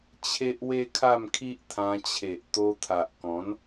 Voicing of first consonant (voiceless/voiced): voiceless